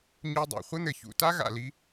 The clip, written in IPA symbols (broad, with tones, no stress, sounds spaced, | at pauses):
ɲ u˧ dˤ a̰˨ χʷ ɘ˦ n̪ ɘ˨ ç ṵ˨ t a˦ ɣ a̰˨ l i˧